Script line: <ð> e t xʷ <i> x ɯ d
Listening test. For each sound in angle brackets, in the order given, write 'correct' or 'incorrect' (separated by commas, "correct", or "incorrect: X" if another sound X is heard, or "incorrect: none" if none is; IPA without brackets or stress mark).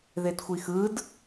correct, correct